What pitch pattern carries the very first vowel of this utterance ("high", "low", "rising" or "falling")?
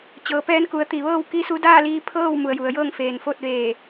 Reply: low